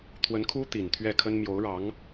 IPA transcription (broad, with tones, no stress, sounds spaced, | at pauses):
t̪ʰ w ə˧˥ n kʰ u˥ t̪ i˨˩ n t̪ʰ ɥ ɛ˥˩ kʰ ə˥ n m j o˧˥ ʊ̯ ɻ ɑ˧˥ ŋ